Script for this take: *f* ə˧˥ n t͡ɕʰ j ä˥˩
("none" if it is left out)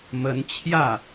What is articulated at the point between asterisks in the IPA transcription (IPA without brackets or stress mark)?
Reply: m